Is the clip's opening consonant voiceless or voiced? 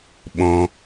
voiced